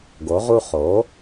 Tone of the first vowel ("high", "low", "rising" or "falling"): rising